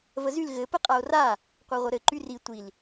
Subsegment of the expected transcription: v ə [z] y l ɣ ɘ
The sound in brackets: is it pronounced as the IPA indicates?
yes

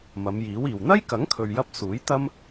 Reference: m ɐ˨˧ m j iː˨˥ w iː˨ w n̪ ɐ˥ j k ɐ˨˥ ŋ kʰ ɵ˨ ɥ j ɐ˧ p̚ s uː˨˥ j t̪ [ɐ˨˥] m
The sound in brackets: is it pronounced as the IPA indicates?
no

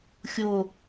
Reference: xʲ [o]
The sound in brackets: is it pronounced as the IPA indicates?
yes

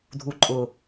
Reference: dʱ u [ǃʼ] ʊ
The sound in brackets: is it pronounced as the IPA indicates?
yes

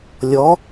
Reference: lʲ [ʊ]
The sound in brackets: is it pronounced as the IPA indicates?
no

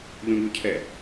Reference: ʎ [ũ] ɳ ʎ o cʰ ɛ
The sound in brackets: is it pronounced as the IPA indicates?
yes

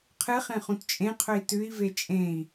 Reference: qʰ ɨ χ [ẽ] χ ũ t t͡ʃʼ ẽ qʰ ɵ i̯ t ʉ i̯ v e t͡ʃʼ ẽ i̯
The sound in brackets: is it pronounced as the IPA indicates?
yes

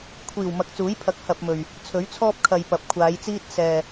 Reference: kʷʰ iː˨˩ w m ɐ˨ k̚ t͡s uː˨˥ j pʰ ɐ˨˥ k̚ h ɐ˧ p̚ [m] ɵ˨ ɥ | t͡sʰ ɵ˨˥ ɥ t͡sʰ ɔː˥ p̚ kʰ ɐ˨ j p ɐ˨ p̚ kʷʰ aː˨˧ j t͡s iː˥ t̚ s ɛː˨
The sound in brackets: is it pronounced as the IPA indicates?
yes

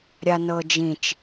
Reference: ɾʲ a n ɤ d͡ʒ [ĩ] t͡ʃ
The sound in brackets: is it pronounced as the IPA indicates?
yes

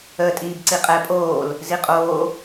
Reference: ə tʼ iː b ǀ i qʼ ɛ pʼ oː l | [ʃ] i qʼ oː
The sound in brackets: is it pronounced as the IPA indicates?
no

